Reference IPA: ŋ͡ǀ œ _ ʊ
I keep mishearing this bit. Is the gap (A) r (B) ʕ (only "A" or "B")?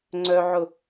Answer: B